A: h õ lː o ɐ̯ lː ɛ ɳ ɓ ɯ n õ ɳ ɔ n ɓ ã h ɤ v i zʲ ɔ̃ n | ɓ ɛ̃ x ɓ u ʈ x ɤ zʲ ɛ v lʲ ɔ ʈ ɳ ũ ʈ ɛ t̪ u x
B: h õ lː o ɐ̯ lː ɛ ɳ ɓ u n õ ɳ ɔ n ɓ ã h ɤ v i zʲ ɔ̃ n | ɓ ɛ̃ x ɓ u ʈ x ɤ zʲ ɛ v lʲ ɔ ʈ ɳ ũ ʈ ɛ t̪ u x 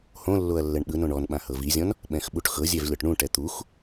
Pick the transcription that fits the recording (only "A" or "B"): A